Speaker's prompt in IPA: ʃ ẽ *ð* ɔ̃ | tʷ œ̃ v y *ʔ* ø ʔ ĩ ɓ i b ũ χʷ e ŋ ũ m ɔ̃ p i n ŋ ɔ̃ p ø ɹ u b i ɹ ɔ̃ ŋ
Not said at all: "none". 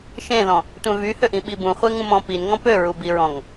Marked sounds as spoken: ð, h

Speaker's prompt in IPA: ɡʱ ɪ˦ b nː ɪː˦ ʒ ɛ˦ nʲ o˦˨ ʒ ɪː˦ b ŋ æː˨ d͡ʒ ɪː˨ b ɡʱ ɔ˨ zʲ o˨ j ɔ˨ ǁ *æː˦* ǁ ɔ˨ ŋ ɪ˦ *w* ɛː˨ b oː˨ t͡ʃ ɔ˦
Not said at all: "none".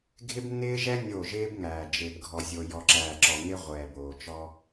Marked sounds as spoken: æː˨, ʁʷ

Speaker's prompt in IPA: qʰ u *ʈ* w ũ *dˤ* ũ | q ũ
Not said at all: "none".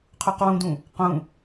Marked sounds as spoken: q, d

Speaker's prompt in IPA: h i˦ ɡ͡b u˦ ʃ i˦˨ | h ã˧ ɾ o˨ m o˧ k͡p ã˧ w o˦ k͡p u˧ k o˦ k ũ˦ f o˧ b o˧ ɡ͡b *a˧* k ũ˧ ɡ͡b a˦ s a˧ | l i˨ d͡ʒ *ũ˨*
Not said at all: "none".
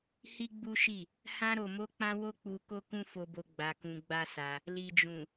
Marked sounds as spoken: a˧, ũ˨

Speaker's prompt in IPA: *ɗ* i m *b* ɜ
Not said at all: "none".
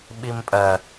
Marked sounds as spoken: ɓ, pʼ

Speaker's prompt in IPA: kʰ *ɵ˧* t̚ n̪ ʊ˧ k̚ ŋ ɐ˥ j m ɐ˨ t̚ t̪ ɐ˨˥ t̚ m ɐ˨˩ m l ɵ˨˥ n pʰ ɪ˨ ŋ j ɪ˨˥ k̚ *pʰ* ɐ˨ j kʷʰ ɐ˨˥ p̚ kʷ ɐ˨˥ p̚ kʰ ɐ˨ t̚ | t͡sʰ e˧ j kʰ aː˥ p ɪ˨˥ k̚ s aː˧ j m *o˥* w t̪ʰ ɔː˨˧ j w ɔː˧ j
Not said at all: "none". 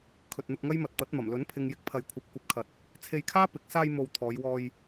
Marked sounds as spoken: ɵ˨, pʰ, o˨

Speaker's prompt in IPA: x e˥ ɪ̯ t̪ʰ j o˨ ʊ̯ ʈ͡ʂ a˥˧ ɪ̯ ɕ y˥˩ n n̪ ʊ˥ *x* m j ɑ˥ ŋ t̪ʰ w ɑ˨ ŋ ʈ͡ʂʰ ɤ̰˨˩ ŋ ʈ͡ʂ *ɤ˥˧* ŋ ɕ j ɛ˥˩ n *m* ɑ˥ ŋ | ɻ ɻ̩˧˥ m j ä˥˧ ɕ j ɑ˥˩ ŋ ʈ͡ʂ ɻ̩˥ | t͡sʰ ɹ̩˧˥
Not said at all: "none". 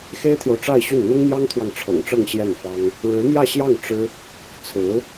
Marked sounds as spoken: ŋ, ɤ˥˧, f

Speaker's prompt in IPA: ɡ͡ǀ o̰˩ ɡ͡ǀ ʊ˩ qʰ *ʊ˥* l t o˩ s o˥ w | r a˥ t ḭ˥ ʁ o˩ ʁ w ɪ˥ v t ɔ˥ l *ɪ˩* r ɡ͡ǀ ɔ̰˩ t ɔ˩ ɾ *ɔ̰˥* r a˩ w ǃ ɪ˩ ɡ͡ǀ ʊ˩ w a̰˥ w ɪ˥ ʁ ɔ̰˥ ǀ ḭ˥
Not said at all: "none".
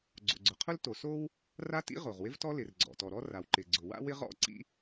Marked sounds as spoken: ʊ˥, ɪ˩, ɔ˥

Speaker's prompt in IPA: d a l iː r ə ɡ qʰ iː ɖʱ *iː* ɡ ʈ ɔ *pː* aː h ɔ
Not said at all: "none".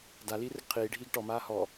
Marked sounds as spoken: iː, m

